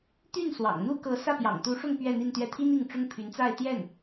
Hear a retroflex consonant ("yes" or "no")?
yes